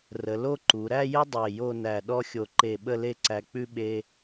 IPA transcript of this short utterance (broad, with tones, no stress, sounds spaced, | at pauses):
r ə˩˧ l o˥˧ ǃ u˩˧ ɾ æ˥˧ j ɘ˥ dˤ e˧˩ j o˥˧ n æ˧˩ ɗ ɔ˥ xʲ o˧ ǃ e˧˩ ɓ ə˥˧ l e˥˧ ǀ æ˧ k͡p ʉ˥ ɓ e˥